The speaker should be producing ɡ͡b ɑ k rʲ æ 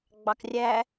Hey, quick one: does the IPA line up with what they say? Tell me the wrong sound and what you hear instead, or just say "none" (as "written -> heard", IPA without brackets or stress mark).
none